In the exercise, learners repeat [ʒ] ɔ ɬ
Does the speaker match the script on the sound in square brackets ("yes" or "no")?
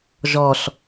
yes